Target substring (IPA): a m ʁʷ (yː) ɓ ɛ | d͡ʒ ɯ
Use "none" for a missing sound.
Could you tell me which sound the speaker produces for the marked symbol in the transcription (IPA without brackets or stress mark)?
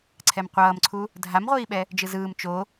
iː